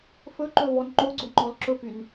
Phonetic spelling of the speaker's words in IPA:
f ɵ ǃ ɵ v ɔ n ŋ͡ǃ o ɡ͡ǀ o ŋ͡ǃ ɔ l ǁ ɵ p y n

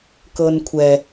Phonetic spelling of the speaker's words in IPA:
k ɤ n kʷʰ ɛ

